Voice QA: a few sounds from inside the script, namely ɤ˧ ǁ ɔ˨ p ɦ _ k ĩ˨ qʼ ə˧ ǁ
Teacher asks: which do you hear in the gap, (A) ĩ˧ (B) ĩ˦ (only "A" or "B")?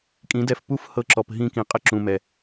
A